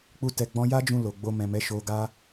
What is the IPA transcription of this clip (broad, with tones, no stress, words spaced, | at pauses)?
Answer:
k͡pu˧ tɛ˨ɡ͡bɔ̃˧ja˦d͡ʒũ˧ lo˨ ɡ͡bo˧mɛ̃˨mɛ˨˦ ʃo˧ɡa˦